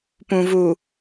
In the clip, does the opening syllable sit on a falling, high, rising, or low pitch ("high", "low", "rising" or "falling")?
low